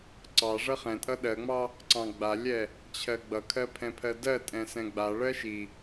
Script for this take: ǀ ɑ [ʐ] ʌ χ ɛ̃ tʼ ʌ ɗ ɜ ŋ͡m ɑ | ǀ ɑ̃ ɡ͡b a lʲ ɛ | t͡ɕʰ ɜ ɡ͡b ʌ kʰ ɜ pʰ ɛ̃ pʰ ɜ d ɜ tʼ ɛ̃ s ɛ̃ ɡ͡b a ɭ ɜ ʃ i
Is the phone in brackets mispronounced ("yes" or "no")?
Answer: no